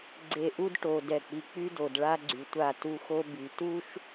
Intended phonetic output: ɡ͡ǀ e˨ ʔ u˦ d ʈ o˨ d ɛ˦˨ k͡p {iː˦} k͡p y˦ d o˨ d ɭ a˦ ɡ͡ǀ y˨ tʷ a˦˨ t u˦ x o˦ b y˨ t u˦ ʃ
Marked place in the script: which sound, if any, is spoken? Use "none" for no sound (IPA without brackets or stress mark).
i˦